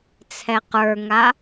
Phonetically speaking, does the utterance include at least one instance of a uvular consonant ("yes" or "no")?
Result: yes